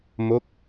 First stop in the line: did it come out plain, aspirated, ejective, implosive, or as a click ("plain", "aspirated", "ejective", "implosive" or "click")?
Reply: plain